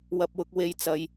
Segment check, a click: absent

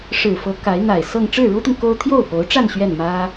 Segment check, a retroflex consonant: present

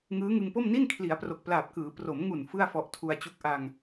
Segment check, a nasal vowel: absent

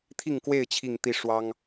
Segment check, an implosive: absent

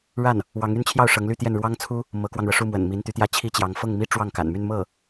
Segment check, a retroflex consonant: present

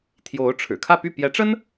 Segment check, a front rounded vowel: present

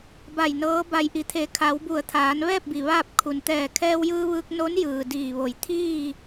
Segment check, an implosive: absent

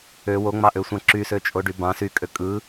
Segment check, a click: present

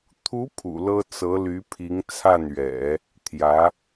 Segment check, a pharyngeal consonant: absent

